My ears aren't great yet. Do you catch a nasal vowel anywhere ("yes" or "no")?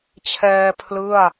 no